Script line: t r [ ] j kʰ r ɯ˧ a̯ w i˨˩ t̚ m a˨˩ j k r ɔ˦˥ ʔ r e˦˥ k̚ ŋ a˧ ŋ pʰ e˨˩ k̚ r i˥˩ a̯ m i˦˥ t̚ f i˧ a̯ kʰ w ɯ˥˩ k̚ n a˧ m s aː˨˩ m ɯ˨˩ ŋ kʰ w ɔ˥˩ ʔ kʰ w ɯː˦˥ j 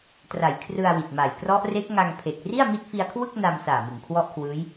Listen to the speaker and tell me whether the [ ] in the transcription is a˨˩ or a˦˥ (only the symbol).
a˨˩